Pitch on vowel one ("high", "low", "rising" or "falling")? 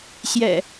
low